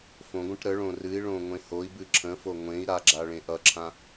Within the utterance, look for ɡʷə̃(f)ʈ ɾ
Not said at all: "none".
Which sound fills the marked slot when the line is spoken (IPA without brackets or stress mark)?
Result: none